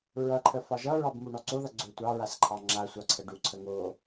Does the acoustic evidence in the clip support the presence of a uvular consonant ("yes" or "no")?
no